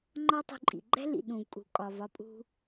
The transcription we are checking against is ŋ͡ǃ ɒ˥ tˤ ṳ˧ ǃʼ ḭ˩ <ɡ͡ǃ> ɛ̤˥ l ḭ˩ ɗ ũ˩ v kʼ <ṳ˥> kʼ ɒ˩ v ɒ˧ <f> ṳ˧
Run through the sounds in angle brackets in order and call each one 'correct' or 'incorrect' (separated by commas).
correct, incorrect, incorrect